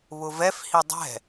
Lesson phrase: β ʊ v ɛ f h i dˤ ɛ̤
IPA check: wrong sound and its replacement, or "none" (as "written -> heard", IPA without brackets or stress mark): none